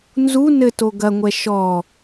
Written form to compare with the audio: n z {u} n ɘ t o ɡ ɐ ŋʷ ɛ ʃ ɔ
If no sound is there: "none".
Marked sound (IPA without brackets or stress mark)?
u